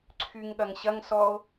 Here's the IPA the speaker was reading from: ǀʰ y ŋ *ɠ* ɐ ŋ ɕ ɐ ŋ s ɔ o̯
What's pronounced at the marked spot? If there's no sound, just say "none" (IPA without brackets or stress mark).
ɠ